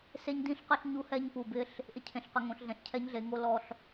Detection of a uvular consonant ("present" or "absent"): present